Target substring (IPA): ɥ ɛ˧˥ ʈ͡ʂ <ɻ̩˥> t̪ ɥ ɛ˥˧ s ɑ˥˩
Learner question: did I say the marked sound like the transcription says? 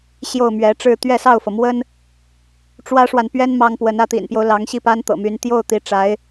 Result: no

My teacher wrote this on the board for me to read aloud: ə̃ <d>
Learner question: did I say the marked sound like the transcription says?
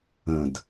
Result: yes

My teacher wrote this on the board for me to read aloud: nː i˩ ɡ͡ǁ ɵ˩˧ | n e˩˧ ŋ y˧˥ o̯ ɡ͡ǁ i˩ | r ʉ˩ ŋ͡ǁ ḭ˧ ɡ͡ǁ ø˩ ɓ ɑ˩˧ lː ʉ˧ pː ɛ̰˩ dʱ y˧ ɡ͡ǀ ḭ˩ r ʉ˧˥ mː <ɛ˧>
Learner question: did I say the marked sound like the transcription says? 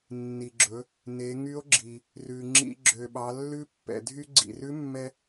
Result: yes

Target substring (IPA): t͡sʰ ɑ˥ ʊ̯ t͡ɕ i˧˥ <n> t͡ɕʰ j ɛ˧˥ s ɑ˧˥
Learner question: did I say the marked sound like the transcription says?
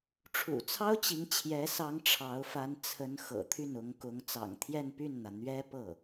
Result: no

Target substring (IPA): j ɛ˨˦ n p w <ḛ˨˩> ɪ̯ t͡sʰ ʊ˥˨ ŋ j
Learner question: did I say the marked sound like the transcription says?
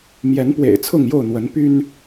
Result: yes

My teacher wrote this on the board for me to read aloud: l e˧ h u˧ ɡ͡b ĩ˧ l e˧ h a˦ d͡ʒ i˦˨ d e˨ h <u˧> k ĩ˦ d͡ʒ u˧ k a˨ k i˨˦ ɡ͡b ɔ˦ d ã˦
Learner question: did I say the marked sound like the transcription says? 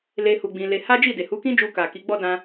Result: no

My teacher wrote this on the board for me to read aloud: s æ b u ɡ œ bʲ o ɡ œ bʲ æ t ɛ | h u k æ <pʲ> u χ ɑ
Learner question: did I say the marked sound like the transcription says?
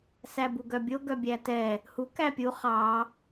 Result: yes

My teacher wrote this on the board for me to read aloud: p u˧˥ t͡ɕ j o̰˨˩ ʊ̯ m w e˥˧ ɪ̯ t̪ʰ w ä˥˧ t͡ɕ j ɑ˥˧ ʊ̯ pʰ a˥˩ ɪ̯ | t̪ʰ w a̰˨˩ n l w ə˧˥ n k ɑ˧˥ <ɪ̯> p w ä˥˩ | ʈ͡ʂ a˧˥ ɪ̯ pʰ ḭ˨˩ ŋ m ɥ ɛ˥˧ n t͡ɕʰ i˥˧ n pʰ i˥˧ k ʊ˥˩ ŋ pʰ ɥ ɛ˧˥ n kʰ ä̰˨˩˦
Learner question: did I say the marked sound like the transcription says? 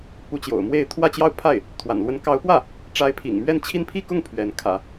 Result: no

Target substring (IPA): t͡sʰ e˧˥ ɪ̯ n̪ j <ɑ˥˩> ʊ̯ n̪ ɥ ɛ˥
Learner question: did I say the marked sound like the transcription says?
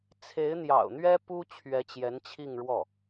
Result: no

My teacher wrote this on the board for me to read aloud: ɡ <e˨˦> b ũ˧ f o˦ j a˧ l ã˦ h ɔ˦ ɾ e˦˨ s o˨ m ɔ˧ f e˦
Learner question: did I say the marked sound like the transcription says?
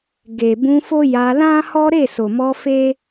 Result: no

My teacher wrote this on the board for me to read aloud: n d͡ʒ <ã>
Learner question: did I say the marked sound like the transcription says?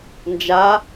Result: no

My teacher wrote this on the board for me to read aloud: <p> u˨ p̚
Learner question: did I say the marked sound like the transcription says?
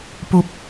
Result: yes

